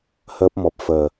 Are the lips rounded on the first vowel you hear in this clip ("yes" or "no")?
no